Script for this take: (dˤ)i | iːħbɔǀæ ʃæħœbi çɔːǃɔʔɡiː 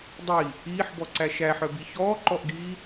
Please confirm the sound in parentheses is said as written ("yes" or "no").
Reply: yes